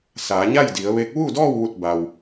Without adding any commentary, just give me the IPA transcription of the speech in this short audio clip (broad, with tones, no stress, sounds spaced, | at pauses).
s aː˩˧ ɲ a˥˨ j d i˩˧ ə̯ ʋ e˧˥ k̚ ʋ u˥˨ d ɔː˥˨ w ʋ u˧˩ t̚ b a˩ w